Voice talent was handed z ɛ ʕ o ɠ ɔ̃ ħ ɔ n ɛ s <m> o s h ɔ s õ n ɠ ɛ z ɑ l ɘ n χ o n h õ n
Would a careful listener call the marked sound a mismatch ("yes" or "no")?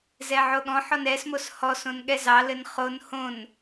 no